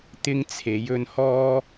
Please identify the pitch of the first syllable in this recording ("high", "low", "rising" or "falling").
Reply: high